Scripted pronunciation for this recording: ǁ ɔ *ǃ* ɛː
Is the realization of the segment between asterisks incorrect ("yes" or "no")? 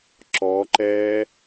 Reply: no